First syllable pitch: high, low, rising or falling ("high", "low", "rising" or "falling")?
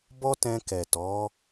high